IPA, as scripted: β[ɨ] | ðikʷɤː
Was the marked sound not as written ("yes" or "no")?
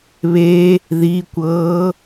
yes